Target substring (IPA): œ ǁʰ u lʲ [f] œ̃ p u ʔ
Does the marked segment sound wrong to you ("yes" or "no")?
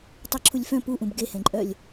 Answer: no